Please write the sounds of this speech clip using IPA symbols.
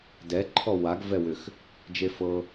d ɛ ǃʰ ɔ w a ɡ v ɛ w ʏ x | d͡ʒ e f ɤ

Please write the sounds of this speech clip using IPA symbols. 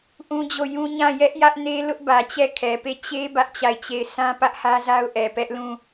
ʔ ũ˦ d͡ʑ o˦˨ j ũ˦ ɲ ã˦˨ j ɛ˦ ʔ j ä˦ ʔ n e˦ l ʊ˦ ʔ b ä˨ t͡ɕ ɛ˦˨ kʰ ɛ˨ p e˦˨ t͡ɕ e˦ b ä˦ ʔ t͡ɕ a˦˨ ɪ̯ t͡ɕ e˦˨ ɪ̯ sʰ ã˦ p ä˦ ʔ h ä˦ z a˦ ʊ̯ ʔ ɛ˨ p ɛ˦ ʔ l ũ˦˨

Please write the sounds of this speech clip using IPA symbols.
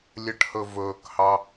lʲ ə ʈ h ɵ v ɵː k h ɑ

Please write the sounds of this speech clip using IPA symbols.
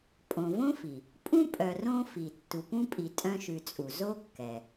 pʼ õ˨ v õ˥ f i˩ | pʼ ũ˥ pʼ œ˨ r õ˦ f i˩ tː u˨ p ũ˥ pʼ i˨ tʼ œ̃˦ ʃ ʉ˨ t͡sʼ u˩ z o˥ kː ɛ˩

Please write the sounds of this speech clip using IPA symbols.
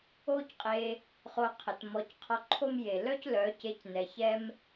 o˦ c qʼ e˧ | χ o˧ qʰ ə˨ t m ɔ˨˦ c qʰ ɔ˧ ǃʰ o˦ m j e˨ l œ˦ c l œ˨˦ c e˧ c n ɛ˨ ç ɛ˦ m

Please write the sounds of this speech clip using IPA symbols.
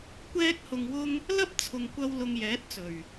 kʷ ɛː˥ k̚ h ʊ˧ ŋ w ʊ˥ ŋ | l ɐ˥ p̚ t͡sʰ ʊ˨ ŋ kʷ ɐ˧ w l ʊ˧ ŋ j ɛː˨˥ t̚ t͡s ɵ˨˩ ɥ

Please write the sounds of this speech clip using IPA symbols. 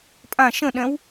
pʼ ã ʃ ə̃ ɗ ɛ̃ w

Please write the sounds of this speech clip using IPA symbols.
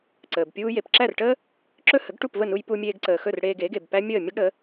ǀ əː˩ b pʲ uː˧ j e˩ p ǁ æ˥˩ r ʈ əː˥ | ǁ ɵ˥ h ə˩˥ ɡ ʈ u˥˩ p v ə˥˩ n u˧ j p u˧ mʲ eː˧ ɡ ǀ əː˩ x ɵ˥˩ r ɽ eː˧ ɡ e˩˥ ɡ e˩ b p æ˥ mʲ əː˥˩ mʲ ə˥ ɡ ɽ ə˩˥

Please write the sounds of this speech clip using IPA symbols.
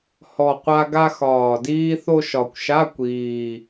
h ɔ˨˩ qʷ a˧ ɡ a˧ x ɒː˨˩ d iː˧ θ o˧ ʃ ɒ˨˩ kʷ ʃ a˧˥˧ kʷ iː˨˩

